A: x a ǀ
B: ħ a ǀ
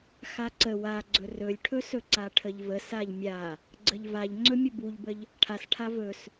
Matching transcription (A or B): A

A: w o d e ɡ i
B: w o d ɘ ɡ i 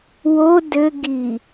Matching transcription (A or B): B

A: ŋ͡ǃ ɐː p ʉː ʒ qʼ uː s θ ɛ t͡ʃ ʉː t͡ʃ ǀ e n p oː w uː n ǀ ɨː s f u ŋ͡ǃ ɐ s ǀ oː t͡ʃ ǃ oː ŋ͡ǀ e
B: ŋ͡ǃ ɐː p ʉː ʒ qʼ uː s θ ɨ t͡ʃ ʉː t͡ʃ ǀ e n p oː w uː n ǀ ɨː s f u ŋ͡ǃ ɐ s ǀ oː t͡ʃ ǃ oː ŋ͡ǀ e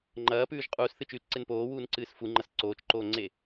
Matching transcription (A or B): B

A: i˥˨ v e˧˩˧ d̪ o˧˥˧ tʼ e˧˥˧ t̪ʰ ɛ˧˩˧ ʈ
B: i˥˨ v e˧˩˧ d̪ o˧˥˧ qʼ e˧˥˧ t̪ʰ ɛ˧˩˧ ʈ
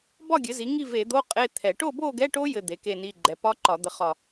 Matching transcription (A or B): B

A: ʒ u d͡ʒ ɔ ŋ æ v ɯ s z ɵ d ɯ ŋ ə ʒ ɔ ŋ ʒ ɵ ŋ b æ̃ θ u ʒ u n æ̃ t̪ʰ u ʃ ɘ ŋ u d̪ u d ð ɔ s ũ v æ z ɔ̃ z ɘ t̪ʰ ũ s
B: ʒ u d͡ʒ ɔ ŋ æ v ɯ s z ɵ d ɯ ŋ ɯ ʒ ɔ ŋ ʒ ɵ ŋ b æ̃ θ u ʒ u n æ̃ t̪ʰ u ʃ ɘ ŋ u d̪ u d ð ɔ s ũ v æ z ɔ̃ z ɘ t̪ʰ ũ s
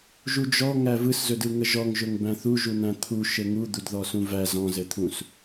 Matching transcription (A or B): A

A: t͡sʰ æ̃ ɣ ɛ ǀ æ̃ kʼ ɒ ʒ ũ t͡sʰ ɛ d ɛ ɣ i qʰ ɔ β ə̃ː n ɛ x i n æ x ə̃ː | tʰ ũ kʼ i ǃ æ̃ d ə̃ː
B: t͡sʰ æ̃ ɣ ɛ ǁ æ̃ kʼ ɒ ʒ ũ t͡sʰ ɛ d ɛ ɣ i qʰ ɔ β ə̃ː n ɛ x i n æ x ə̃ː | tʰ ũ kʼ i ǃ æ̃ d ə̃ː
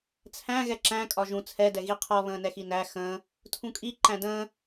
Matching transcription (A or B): B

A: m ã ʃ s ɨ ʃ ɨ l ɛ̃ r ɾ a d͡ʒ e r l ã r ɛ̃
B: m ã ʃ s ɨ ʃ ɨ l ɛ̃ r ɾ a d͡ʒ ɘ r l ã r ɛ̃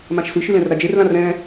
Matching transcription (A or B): A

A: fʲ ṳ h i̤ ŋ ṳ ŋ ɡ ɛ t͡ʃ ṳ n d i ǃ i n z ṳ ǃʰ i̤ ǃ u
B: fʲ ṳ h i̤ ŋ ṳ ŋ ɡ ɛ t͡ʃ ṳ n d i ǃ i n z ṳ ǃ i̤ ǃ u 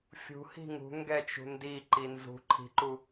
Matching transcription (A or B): A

